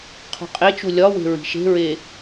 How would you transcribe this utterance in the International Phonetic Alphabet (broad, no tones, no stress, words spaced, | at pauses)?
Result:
qʰṳqʼet͡ʃu lʲɒwe̤ ɹi̤ʃe̤ɹe